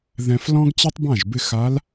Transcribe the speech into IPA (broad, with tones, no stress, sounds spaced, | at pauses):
ð ɛ̃˧ f l ɔ̃˥ ɡ t͡ɕ e˥ tˤ b ã˥˨ ʒ b ɪ˥˨ x a˧˥ l